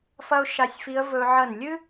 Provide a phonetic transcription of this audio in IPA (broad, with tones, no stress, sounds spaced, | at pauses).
f ɐ˥ ʊ̯ ʃ a˧ sʲ f i˧˥ ə̯ v ɵ˧ ʕ ɐ˧˩ n lʲ ɨ˥